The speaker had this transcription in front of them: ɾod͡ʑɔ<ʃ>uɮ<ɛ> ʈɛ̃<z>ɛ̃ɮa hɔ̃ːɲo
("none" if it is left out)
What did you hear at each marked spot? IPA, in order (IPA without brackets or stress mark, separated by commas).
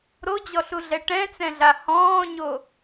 ɬ, ɛ, t͡s